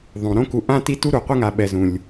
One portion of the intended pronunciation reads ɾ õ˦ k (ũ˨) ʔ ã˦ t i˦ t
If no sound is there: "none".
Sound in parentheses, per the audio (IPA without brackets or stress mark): u˨